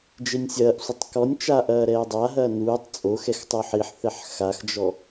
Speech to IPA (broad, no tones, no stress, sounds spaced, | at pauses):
d͡ʒ e nʲ sʲ ɐː ʔ sʷ ɘ tˤ k ɔ nʲ t͡ʃ aː ʔ ɐː ɾ ɛː dˤ a ɦ ɐː n uː tˤ t͡sʼ o x ɛ x tˤ u ħ i ħ θ ɛ ħ x a x d͡ʒ ɔ